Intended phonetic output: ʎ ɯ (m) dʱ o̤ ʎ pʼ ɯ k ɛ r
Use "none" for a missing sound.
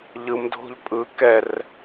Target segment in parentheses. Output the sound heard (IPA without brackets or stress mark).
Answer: m